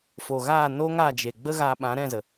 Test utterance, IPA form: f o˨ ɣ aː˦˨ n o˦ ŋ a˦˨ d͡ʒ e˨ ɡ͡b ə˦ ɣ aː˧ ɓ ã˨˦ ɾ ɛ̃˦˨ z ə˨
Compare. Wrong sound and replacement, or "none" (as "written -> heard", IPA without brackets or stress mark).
none